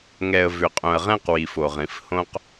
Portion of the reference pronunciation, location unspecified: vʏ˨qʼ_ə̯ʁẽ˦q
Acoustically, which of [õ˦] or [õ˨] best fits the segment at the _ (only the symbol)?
õ˨